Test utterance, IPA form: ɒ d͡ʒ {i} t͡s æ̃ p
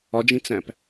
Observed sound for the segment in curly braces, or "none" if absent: ĩ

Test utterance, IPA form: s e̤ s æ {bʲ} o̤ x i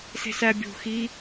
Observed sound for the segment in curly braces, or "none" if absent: bʲ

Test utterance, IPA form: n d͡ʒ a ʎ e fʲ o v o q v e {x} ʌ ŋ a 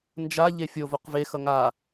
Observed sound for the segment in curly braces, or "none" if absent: x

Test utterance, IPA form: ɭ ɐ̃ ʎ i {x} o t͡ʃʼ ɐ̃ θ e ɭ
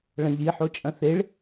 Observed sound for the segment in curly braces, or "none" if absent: ħ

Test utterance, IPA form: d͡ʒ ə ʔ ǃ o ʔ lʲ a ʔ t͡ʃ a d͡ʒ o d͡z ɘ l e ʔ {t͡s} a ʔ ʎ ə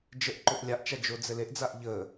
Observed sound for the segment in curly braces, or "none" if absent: d͡z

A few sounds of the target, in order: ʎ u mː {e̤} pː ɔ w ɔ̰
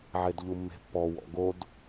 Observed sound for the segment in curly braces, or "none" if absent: e̤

